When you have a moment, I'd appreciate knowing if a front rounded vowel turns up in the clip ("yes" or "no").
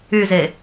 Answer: yes